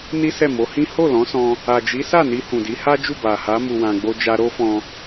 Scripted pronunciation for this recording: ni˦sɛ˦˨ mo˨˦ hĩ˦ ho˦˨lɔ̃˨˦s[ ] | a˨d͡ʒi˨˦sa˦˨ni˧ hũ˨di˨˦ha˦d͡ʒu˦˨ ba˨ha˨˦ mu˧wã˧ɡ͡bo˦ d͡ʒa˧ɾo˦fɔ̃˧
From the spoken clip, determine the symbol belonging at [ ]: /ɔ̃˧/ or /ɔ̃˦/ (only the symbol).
ɔ̃˧